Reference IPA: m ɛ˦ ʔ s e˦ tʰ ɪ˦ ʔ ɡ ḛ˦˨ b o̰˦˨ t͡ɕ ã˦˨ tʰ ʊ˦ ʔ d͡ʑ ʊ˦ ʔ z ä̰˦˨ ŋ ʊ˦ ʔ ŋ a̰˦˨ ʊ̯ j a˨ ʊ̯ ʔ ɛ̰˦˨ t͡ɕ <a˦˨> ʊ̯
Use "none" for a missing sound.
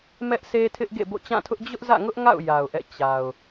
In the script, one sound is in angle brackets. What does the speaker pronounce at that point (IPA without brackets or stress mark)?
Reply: a˨